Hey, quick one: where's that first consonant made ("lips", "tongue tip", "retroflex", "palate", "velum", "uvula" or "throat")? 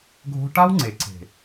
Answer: velum